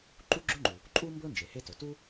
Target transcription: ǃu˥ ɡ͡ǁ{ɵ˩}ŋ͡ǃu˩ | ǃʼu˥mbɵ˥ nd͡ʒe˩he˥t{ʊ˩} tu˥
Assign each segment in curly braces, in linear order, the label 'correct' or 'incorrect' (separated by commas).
incorrect, incorrect